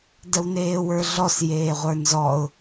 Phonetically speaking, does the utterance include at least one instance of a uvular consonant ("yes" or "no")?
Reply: yes